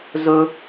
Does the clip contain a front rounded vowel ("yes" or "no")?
no